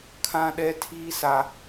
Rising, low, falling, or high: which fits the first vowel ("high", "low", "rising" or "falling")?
high